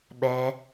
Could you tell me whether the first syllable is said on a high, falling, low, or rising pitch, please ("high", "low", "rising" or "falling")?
low